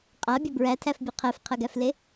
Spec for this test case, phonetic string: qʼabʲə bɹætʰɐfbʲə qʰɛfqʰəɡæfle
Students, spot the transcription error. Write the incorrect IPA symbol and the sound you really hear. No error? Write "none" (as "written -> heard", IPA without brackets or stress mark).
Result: ɐ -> æ